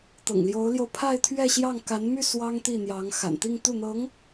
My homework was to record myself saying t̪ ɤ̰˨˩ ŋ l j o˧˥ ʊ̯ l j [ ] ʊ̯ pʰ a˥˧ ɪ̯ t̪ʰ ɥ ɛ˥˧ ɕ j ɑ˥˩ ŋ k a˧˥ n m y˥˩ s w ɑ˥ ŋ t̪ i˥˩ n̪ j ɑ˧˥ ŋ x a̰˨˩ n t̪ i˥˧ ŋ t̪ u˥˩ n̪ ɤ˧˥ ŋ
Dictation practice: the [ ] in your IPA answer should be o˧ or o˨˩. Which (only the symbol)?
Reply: o˧